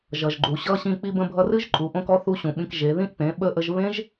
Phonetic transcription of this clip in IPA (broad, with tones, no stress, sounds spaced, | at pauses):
ʒ ʌ˩ ʒ ɡ͡ǃ u˩ ɕ ʌ˦˥ ɕ ĩ˧ k͡p i˧ b ə̃˧ bʱ ʌ˧ r ɨ˦˥ ʒ ǃʼ u˩˧ ʔ õ˧ k ɔ˩˥ θ u˧ ɕ ũ˩ ɓ ĩ˧ k ʒ e˩˧ ð ĩ˦˥ ʔ p ẽ˩˥ ɓ ə˦˥ ʔ ə˦˥ ʒ β ẽ˦˥ ʒ